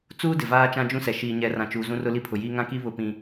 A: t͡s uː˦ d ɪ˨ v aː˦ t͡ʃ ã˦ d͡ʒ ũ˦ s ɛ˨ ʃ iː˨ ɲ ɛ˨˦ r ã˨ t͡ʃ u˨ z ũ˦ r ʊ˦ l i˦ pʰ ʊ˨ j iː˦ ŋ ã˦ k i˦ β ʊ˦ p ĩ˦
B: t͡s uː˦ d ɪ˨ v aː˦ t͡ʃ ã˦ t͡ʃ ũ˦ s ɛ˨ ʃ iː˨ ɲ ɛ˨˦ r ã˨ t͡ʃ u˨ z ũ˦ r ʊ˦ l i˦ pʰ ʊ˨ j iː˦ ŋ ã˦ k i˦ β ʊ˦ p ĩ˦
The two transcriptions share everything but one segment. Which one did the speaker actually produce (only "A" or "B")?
A